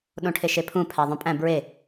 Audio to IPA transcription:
ɗõʈʰeʃepʰũ pʰæðˤõpʼæ̃ bɹe

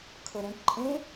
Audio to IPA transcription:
kʰɤɾẽʈ ǃʼẽ

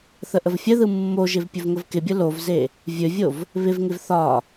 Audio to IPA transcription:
θəʔəvfʲəðɯ mːoʒɪv pʲɵvŋəvkɪbʲə lovze | vʲɵvʲov | βɪvŋɪv θɒ

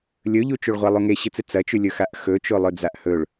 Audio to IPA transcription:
lʲɵʎut͡ʃuɭʁʷa lˠuŋeɕɨt͡sɨ t͡sɐt͡ʃʉlʲɵ xaʔxɵ t͡ʃolˠɵd͡zaʔhɵɭ

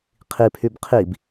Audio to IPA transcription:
qʰipʰyb qʰib

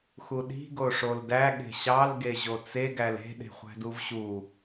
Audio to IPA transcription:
xuɗi̤ ɡoʂoldæ ɠe̤ɕɑl ɡeʑot͡se ɡæle̤ ɗe̤χʷæ̤duvɕu

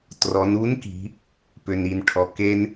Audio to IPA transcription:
trɔ˩˧nu˧˥nki̤˩˧ | pʏ˩ni˩nʈʰɔ˩ ke˧n

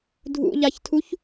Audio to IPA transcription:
dʱṵʎaçtʰuç

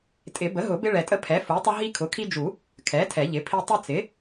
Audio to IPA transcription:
tʼɪ˨˩˦bə˩˥ɦʊ˨˩˦ bɪ˦ɭɛ˨tʼə˦ pʰɛ˩˥fu˩˥tˤə˦ ɦi˦kʰʊ˩˥kʰi˦d͡ʒu˨˩˦ | kʰɛ˩˥ tʰɛ˨˩˦ʎɪ˩˥pʰi˦ tˤɪ˦t͡sɪ˩˥

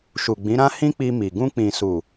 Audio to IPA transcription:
ʃu˨ɡ͡bĩ˨˦ɾã˦ hĩ˦k͡pi˧mi˨ ɡũ˧k͡pĩ˨su˨

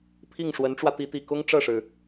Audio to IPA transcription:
pʰi˥˩ŋʂwə˧˥nʈ͡ʂwä˧ t̪i˧˥t̪i˨˩kʊ˥ŋ ʈ͡ʂɤ˥˩ʂɻ̩˩

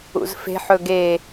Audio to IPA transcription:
ṵzfe̤ħɵ ɡe

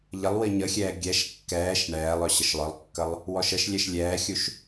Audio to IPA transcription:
ʎəlˠwi ɲəxʲɛː ɡʲɛʃ kːɛːʃ ɳɛːlˠœ ɕəʃlˠœlˠkːəlˠ | wɔʃəʃlʲɛʃ lʲɛːxʲuʃ

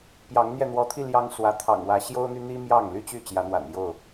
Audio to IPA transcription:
pjɑ˨˦ŋn̪jɛ˧ n̪wɔ˨˦t̪ʰi˧ ljɑ˦ŋswä˨˦t̪ʰɑ̰˨˩ŋ wä˨˦ ɕjo˦ʊ̯n̪y˦n̪i˦ mjɑ˥˨ŋly˦t͡ɕy˥˨ t͡ɕjä˨˦n̪wa̰˨˩n jo˥˨ʊ̯

